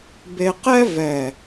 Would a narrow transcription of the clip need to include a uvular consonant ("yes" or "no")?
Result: yes